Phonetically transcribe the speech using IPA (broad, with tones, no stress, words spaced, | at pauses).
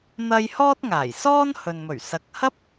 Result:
n̪ɐ˥j hɔː˥t̚ŋaː˨˩j sɔː˥nhɵ˨nmɵ˨˩ɥ sɐ˨k̚hɐ˥p̚